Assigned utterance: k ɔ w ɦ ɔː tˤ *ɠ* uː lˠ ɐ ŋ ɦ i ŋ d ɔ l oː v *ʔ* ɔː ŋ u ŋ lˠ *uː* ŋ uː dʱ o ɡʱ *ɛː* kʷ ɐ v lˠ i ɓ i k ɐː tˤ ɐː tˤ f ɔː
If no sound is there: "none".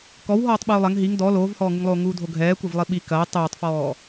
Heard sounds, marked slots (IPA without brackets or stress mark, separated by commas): ɓ, h, oː, ɛː